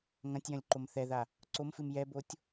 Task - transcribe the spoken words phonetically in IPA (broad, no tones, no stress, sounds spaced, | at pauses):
ŋ ɐ̃ tʲ j ɐ̃ lʲ ǃ o m θ ɛ ð a | ǀ o m f ɨ m j ɛ b o tʲ